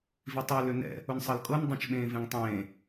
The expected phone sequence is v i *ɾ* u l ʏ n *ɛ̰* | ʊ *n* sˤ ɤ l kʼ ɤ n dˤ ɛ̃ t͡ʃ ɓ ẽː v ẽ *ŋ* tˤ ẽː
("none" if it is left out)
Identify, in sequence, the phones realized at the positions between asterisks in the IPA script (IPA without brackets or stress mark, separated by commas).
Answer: tˤ, ɛ̰, n, ŋ